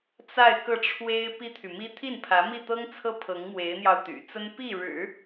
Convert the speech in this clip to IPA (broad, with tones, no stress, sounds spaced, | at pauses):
t͡s a˥˧ ɪ̯ k ɤ˥˩ ʈ͡ʂʰ w e˥ ɪ̯ p i˥ t̪ʰ y˨ m i˥ t̪ʰ i˥˩ n pʰ ä˧˥ m i˥˩ t̪ ɤ˥ ŋ t͡sʰ ɤ˥ pʰ ɤ˧˥ ŋ m w e˧˥ ɪ̯ n̪ j ɑ˧ ʊ̯ t̪ y̰˨˩ t͡s ə˥ n p i˥˩ ɻ ɻ̩˨˩˦